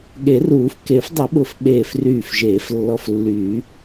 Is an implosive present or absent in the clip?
present